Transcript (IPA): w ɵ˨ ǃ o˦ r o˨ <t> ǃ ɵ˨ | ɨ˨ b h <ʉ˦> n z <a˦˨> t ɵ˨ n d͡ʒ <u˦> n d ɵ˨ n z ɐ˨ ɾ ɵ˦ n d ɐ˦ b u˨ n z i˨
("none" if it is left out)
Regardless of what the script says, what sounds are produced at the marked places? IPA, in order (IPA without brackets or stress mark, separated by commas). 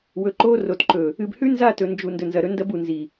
t, ʉ˦, a˦˨, u˨